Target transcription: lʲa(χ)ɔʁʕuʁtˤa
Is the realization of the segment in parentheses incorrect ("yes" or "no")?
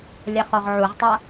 no